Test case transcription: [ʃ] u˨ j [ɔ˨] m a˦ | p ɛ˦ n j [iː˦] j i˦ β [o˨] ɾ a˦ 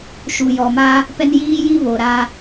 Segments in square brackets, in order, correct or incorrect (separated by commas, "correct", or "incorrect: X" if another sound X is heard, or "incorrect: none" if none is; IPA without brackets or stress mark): correct, correct, correct, correct